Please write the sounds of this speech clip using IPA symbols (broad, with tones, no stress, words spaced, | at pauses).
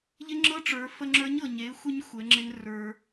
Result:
ʎɪ˧ŋ͡ǁɤ˧˥ ʈ͡ʂə˞˩˧fə˧ŋ͡ǁə˞˧˥ɲ ɤ˩ɲe˩˧ xʷe˥ɲxʷɛ˩˧ŋ͡ǁɪ˧n rə˞˩